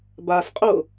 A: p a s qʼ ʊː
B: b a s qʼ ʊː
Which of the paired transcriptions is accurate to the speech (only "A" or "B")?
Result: B